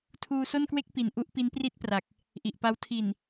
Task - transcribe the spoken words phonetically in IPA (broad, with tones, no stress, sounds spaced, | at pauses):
tʰ uː˧ s o˥˩ n k w e˥˩ k̚ p i˨˩ n ʔ u˥˩ ʔ p i˦˥ n p r i˥˩ t̚ p r a˨˩ k̚ | ʔ i˨˩ ʔ p a˦˥ w tʰ i˨˩ n